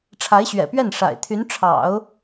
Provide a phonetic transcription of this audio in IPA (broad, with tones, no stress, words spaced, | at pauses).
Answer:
ʈ͡ʂʰa˧˥ɪ̯ɕɥɛ̰˨˩pɥɛ˥˩n ʂa̰˨˩ɪ̯t̪ʰy˧˥n ʈ͡ʂʰɑ̰˨˩˦ʊ̯